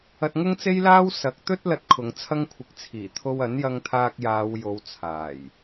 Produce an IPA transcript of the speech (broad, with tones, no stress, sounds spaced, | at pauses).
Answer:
ɐ˧ t̚ ŋ ʊ˥ ŋ t͡s e˥ j l aː˥ w s ɐ˨˥ k̚ t̪ ɵ˥ t̚ l ɐ˧ t̚ kʰ ʊ˨˧ ŋ t͡sʰ ɐ˥ ŋ kʷʰ ɪ˧ k̚ t͡sʰ iː˨˩ t̪ʰ o˧ w ɐ˨˥ n j ɐ˧ ŋ t̪ʰ aː˧ k̚ j aː˨˧ w j o˨˧ w t͡sʰ aː˨˩ j